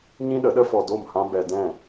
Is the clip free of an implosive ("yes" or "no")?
no